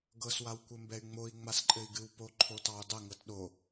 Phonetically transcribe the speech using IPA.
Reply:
ɡ ɤ s w a w kʷ ɘ m b ɛ y̯ ŋ͡m o i̯ ŋ͡m a s ǃʼ ɘ i̯ ɡ ɨ w p o ǃʰ o t ɑ u̯ dˤ ɘ ŋ ɤ t ɗ o

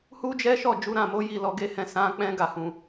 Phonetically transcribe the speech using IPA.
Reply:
h u˦ d͡ʒ ɛ˦ ʃ ɔ˦˨ d͡ʒ u˨˦ ɾ ã˦˨ m o˨˦ j i˦˨ l ɔ˧ ɡ e˦ h ɛ̃˦˨ s ã˨˦ k͡p ɛ̃˦ ɡ a˦˨ h ũ˨

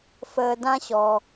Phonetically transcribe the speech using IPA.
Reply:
f əː˧ d ã˦ ɕ ɔ˧

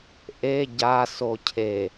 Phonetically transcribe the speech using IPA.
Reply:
ʔ e ɟ a s o cʰ e

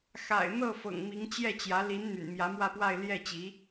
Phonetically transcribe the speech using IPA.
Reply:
x a̰˨˩ ɪ̯ n̪ ɤ˥˩ f ɤ̰˨˩ ŋ m i˧˥ ŋ t͡ɕ j ɛ˥˩ t͡ɕ j ä˧˥ l i˧˥ n n̪ y̰˨˩ n m j ä˧˥ m w ä˥˧ p w a˥˧ ɪ̯ l j ɛ˥˩ t͡ɕ i˧˥

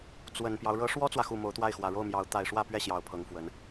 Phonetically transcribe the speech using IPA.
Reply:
t͡s w ə˨˩ n p j ɑ˦ ʊ̯ ɻ ɤ˧˥ ʂ w ɔ˥ t͡s w ä˨ x u˨˩ m o˧˥ ʊ̯ t̪ w a˥˩ ɪ̯ x w ä˨˩ ɻ o˥˩ ʊ̯ m j ɑ˧˥ ʊ̯ t̪ a˨˩ ɪ̯ ʂ w ä˥˧ p ɥ ɛ˥˩ ɕ j ɑ˧˥ ʊ̯ pʰ ɤ˧˥ ŋ f w ə˧˥ n

